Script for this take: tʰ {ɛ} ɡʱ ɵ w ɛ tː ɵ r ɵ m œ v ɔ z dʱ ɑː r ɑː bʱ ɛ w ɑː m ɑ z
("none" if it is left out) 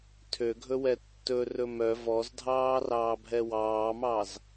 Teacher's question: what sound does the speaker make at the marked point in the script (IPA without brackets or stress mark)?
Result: ø